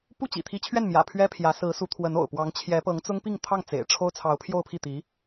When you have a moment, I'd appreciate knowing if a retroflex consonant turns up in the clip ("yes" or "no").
yes